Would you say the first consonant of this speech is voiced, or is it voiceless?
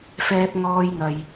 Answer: voiceless